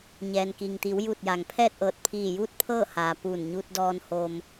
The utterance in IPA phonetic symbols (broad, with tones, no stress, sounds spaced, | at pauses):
ɲ ɛː˩ n k i˩ ŋ t̪ i˩˧ w j u˧˩ t̚ j a˩ ŋ pʰ ɛː˥˨ t̚ ʔ ɤː˧˩ t̚ pʰ iː˧˩ j uː˥˨ t̚ pʰ ɤː˥˨ h aː˩ p uː˧˩ n ɲ u˧ t̚ d ɔː˧ n h o˧ m